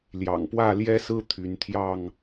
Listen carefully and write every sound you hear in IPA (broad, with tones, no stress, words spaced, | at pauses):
ljɑ̰˨˩ŋpwä˥˨ljɛ˦sɹ̩˦ t̪ʰy˨˦nt̪ʰjɑ˥˨ŋ